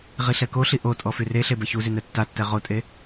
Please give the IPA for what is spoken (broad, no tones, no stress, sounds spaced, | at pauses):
ʁ i ɬ ɛ k o ɬ i ʔ o tʼ ɔ f y r e ɬ e b ɛ ç u z y n ɛ tː a tː ɛ ʁ o tʼ e